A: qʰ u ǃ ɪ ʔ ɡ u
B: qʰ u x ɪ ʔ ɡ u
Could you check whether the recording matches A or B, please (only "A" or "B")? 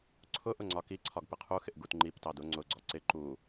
B